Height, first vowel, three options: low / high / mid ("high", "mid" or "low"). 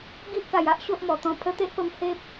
high